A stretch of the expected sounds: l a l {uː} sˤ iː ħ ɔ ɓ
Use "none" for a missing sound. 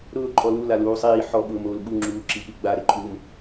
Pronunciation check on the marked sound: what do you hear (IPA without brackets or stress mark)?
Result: uː